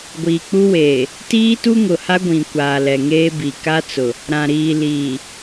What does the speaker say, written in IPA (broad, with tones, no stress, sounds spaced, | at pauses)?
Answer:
ɡʷ iː˨ k͡p u˦ w eː˨ | t iː˦ t u˦ ŋ ʊ˨ h a˦ ɡʷ ĩ˨ kʷ aː˨ l ɛ˨ ŋ eː˦ b i˨ k a˦ t͡s ʊ˨ | ɾ ã˨ ɾ iː˨ l iː˨